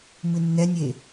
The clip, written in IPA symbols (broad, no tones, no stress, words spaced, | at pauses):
mɨnːɛnʲe